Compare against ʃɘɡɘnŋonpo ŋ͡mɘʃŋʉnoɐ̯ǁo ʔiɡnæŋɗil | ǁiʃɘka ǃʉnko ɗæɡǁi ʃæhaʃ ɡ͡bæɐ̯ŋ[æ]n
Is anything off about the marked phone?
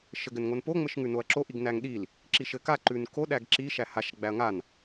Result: yes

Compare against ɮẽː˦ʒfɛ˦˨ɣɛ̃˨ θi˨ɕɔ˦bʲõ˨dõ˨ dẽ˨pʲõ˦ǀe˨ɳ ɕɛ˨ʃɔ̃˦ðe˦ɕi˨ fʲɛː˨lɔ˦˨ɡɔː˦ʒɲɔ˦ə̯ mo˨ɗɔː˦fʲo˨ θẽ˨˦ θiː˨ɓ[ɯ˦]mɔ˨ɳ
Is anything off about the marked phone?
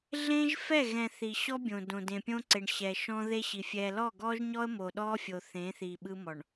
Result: no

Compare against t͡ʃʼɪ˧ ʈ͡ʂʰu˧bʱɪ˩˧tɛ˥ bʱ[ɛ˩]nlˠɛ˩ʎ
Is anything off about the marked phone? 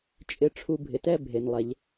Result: yes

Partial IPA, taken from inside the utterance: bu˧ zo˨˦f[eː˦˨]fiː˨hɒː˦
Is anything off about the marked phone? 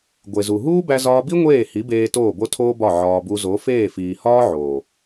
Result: no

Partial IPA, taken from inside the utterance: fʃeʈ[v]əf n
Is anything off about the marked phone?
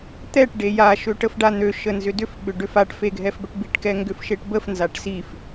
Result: yes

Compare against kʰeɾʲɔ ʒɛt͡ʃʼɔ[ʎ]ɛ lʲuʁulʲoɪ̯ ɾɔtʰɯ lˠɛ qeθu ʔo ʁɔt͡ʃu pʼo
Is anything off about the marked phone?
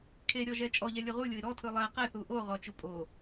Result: no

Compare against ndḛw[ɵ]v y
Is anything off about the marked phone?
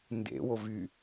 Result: yes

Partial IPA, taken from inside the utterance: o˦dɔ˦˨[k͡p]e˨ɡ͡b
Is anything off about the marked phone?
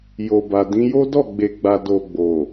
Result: yes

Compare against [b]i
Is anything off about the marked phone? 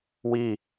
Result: yes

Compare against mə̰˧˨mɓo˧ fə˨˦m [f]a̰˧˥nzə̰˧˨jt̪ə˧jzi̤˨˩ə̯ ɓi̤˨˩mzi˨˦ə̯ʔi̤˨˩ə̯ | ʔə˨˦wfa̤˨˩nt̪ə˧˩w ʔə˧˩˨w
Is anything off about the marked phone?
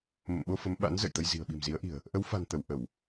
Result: yes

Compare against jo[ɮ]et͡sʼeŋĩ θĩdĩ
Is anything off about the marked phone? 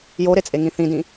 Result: yes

